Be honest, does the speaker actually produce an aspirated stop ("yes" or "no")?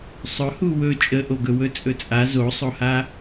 no